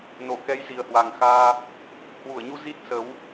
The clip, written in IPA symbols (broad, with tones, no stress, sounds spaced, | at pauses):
n o˧˩ k ɛ˨˦ j z i˨˩ ə̯ h w a˨˩ ŋ x aː˧ | h w u˧˩ ə̯ ɲ u˧ z i˦˥ t̚ s ə˨˦ w